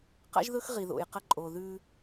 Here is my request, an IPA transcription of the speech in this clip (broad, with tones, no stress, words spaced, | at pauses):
qa̰˦ʒðɵ˦x ʁi˨ðo̰˨jqɐ˦ ǃʼo˨ðʉ˦